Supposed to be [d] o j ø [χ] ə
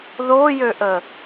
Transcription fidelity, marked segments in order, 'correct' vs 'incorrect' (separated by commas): incorrect, incorrect